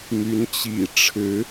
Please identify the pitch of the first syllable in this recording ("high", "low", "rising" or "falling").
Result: rising